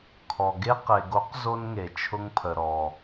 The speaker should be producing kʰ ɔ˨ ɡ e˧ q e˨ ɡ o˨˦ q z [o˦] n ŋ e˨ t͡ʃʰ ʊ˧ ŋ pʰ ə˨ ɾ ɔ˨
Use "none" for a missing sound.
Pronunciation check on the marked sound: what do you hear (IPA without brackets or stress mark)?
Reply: o˦